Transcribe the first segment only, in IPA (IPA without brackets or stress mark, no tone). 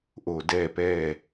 ʔ